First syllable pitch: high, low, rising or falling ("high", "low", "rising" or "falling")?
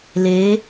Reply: rising